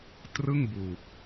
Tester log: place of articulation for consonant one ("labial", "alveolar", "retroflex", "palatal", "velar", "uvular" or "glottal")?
alveolar